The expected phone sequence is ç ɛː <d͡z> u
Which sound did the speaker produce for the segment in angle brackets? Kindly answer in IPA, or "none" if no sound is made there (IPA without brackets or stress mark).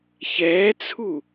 t͡sʰ